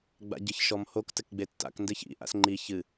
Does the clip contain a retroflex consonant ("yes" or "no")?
no